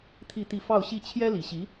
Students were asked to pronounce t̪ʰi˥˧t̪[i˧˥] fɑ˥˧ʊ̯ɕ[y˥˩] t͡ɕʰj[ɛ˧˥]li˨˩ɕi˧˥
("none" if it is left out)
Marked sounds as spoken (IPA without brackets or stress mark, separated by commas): i˥˧, i˥˩, ɛ˥